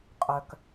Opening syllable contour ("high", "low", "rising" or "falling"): low